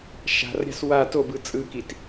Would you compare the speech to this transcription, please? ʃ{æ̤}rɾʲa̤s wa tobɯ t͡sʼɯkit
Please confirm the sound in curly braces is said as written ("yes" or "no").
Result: no